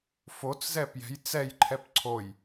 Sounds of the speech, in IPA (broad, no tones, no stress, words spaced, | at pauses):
fot͡s zɛpjɛ̤j t͡sɛj ǃʰɛpǀʰoj